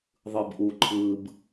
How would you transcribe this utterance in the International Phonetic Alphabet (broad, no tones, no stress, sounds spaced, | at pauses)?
ðˤ ɯ b ʔ u ǃʰ ɯ b